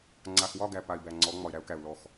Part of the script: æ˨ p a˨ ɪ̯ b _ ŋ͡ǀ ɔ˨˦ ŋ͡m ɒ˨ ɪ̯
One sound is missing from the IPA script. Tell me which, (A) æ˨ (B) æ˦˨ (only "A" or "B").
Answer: A